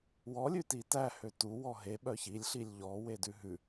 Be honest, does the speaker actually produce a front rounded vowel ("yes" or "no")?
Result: yes